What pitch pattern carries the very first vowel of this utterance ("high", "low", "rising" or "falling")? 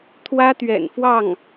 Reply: high